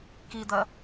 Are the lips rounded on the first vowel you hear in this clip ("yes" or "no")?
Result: no